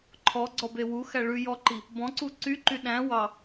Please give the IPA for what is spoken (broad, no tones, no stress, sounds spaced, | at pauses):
ǃʰ ɔ ɡ͡ǀ ɔ b e w u x æ ɭ ʉ j ɔ ǃ i | b ɔ̃ ǀ u ǀ y ǃ y ɗ æ̃ w ɑ